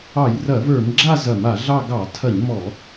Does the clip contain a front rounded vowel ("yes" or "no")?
no